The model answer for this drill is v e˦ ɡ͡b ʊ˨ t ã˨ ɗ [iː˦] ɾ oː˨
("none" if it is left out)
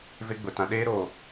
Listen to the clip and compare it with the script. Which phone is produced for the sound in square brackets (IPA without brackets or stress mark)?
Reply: eː˦